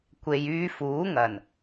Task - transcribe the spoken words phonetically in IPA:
kʷ e˨ j yː˧ f uː˨˥ ŋ ɐ˨˩ n

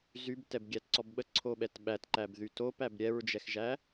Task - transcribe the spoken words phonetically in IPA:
z y b t ɛ b ɡʲ æ t ǀ ɔ b ɓ ə ǀʰ o ɓ ɛ t ɓ æ t ǃ æ b ð y t o p æ b ɾʲ ɛ ɹ d͡ʒ ɛ x ʒ æ

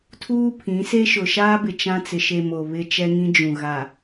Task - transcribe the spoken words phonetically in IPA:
tʰ uː˦ pʰ ĩ˨˦ s e˦ ʃ ʊ˨ ʃ aː˦ b ɪ˨ t͡ʃ ã˦ t͡s ɪ˨ ʃ e˨ m o˨ β ɪ˦ t͡ʃ ɛ˦ ŋ ĩ˦ d͡ʒ ũ˨ ɣ a˨

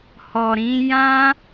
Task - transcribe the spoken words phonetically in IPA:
h ɔ˨ ɾ ĩ˨˦ j ã˦

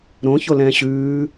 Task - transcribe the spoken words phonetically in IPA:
ɾ õ ç o l ɛ̃ː ɕ ʉː

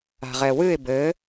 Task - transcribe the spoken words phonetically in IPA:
a̤ ʁ ɛ w ɨ ɪ̯ b ɘ

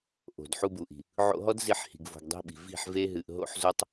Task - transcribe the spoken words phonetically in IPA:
ʔ o̤˨ d ħ u˧ b u˨ ʔ i̤˨ | ʕ o̰˧ ɦ ɔ˦ d z i˦ ħ h i̤˧ ɡ v o̤˧ ɡ dˤ i̤˧ ɓ i̤˨ v i̤˦˨ ħ v e˦ ɦ ɨ˧ ʔ ɦ o̰˦ ħ z o˦ tˤ

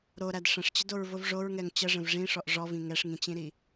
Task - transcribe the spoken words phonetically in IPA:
ɾ o ɾ æ d ʂ ə̃ ʂ t͡ɕ ə d o ɹ v o v ʐ o ɹ ŋ ɛ ŋ t͡ɕ ə ʐ ə̃ v ʐ ĩ ʂ ɔ ʔ ʐ ɔ v ĩ ŋ ɛ ʂ ŋ ĩ t͡ɕ ĩ ɾ i

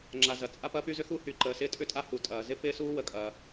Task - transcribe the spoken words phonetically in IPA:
ŋ͡ǁ a˩ z ɐ˩ t͡sʼ a˥ p ɐː˥ p y˥ z ʏ˥ x u˥ h y˩ ǃ əː˩ s ɪː˥ tʼ ʏ˥ tʼ a˥ h u˩ tʼ ɐː˩ z ɪ˥ p ɪː˥ s uː˥ w ə˩ kʼ ɐː˩

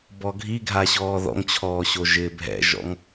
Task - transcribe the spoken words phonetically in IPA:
b ɔ ɡʱ i ɡʱ a ɕ ɔː ð ɔ̰ ŋ t͡ɕʰ ɔː ɕ o ʒ ɪː bʱ ɛ̰ ʒ ɔ̰ ŋ

